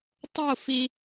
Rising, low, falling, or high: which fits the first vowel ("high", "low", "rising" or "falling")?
falling